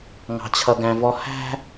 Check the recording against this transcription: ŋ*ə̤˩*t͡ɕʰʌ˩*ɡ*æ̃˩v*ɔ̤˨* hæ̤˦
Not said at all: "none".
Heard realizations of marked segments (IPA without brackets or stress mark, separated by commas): ɑ̤˩, ɡ, ɔ˨